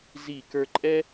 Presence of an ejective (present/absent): present